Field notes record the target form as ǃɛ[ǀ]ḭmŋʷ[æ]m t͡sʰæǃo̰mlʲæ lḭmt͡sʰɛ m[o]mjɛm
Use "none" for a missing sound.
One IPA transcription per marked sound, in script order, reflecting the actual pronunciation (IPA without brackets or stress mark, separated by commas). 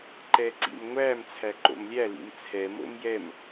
ǀ, æ, o̰